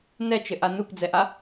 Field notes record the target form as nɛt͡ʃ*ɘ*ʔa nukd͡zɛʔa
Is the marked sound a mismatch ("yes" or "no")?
no